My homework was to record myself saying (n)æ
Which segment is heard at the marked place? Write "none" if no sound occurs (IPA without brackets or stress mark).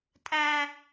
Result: tʼ